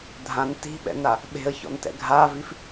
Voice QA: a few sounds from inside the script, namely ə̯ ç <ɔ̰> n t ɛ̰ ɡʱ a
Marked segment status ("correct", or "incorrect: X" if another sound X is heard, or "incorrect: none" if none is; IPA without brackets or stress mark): correct